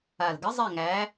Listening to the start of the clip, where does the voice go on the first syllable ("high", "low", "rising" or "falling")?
low